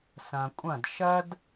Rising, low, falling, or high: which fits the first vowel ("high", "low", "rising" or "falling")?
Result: low